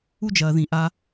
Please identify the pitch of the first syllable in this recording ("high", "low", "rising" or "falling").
high